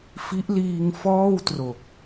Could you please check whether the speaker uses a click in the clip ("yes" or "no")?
no